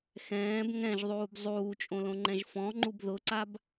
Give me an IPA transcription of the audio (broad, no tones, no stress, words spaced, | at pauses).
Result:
xɛ̃ːb ŋɛ̃ʒðˤuːb zˤuːt͡ʃʼõlõŋ͡ǃɛ̃ʒ fɔ̃ŋ͡ǃub ðʊǀab